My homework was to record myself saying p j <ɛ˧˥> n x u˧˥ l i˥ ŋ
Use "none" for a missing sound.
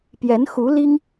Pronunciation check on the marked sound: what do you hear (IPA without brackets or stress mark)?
ɛ˧˥